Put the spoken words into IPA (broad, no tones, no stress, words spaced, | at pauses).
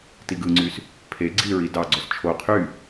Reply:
tiɡɯŋ͡ǀys | pʰe ɡ͡ǀiɹi dɑɡ͡ǀos t͡ʃʰo qʰy